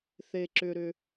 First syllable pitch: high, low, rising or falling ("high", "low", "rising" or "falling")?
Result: low